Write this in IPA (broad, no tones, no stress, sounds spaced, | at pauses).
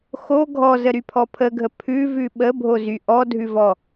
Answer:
x o ɡʱ ɔ z ə ɾ y pʰ ɔ pʰ ə ɡʱ ə pʰ ʉ v ʉ ɓ ə bʱ o z y ʔ ɔ dʱ ʉ v ɔ